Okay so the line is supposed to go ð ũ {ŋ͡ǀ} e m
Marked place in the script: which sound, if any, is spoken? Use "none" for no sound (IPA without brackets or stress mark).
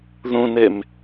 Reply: n